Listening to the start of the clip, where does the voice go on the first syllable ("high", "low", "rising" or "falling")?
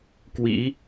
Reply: rising